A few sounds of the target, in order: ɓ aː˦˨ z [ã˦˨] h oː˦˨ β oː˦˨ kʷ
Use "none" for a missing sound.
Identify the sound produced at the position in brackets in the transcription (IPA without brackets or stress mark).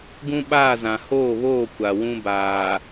ã˨